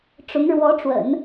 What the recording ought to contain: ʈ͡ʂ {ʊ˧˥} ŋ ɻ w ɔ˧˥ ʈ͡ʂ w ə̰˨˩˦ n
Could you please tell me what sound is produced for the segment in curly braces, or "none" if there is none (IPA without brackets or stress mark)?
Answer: ʊ˧˥